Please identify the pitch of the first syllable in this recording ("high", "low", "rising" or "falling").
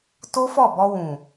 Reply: high